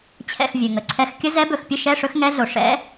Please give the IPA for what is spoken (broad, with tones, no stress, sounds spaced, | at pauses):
t͡ɕʰ ɛ̰˧˩ x vʲ ɵ˩ ŋ ə˩ ǀʰ ɛ˧˥ x kʲ ə˧˥ z ɛ˧˥ b ɵ˧˩ x pʲ ə˧˥˧ ʃ ɛ˧˥˧ ʂ ɵ˧˥ x ŋ ɛ˧˥ ɮ o˩ ʂ ɛ̰˧˥